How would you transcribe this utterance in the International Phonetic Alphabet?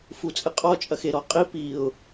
fut͡sʼɨqʼɔ t͡ʃʼɐxeɾɔqʼi piʊ̯

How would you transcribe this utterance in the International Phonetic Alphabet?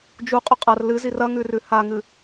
d͡ʒuqʼɵ qʼɐr lɨzir ɐŋʉrʉ haŋɨ

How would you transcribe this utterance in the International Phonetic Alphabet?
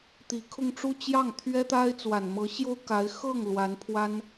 t̪i˨˩kʰʊ˥˧ŋʈ͡ʂu˥˧ t͡ɕjɑ˥˩ŋ t̪ʰɥɛ˥t̪a˥ɪ̯ t͡swa˨˩nmɤ˧˥ɕjo˥ʊ̯ka˧˥ɪ̯ xɤ˥˩ŋ lwa˧˥npʰwa˥n

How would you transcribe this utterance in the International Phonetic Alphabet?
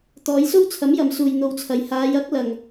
t̪ɔː˨˧jso˥w t͡sʰɐ˨˥mjɐ˨msuː˨j n̪o˨wt͡sʰɐ˨j haː˨˧j ɐ˨˥k̚ lɐ˨ŋ

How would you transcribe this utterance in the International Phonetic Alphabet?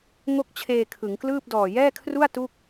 ŋo˥˩k̚t͡ɕʰeː˧kʰɯ˩˦ŋklɯː˥˩p̚ dɔː˨˩jɛː˥˩kʰru˥˩a̯ tu˥˩k̚

